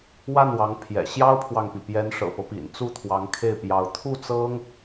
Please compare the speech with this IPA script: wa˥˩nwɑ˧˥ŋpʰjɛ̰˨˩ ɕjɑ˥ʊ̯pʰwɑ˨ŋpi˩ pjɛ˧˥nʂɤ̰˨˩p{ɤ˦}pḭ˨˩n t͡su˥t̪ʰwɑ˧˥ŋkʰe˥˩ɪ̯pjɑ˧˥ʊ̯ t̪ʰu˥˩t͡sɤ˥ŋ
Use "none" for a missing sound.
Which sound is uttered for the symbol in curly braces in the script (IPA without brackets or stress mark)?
ɤ˦